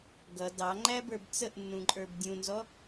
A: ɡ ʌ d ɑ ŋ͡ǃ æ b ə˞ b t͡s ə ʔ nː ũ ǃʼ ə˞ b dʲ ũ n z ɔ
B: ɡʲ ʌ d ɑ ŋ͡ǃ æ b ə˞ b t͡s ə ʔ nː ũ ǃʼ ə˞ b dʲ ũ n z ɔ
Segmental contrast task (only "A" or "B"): A